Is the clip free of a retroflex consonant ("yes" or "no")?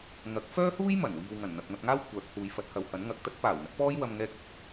yes